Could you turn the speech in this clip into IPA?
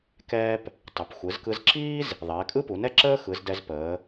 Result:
k ɛː˥ p | tˤ ə˩˧ p xʷ ɯ˩˧ z k ɯ˧ z ǁ iː˥ z | ðˤ ɛː˩˧ kʼ ɯ˥ p u˩˧ n ɛ˥ ǁ əː˥ x ɯ˩˧ z d ɛ˧ z p əː˩˧

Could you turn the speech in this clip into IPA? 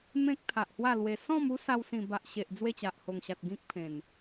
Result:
m ẽ˦ k̚ t̪ʰ a˨ ʔ h w a˥˧ l w e˧ s ɔ̃˥˧ m u˦ s a˧ w s ĩ˨˩ b a˨ ʔ ɕ e˨ ʔ d͡z w e˥˧ t͡ɕ a˨ ʔ h o˨˩ ŋ ɕ a˨ t̚ ɡ ĩ˦ k̚ pʰ ẽ˨˩ n

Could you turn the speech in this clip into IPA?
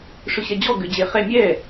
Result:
ʂ ʏ ɕ ɛ d͡ʑ ɔ ɡ ʏ d͡ʑ e χ ɛ mʲ ɛ

